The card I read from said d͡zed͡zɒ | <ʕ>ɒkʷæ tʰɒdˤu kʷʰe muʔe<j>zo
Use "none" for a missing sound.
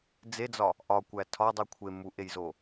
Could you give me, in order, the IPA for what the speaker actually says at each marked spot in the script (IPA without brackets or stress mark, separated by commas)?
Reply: ʔ, j